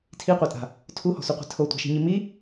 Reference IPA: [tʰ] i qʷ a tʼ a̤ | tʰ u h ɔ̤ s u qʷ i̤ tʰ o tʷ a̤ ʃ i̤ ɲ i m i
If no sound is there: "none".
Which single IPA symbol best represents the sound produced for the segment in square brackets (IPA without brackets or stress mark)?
tʰ